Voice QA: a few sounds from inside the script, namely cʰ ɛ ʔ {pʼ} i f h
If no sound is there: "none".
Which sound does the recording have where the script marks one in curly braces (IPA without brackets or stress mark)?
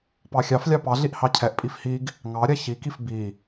pʼ